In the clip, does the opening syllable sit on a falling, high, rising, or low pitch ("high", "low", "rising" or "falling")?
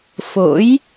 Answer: rising